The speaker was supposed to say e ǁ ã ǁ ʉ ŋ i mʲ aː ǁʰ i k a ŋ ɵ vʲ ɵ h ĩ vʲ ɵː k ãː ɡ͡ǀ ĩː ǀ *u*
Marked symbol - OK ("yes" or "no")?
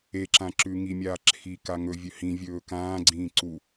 yes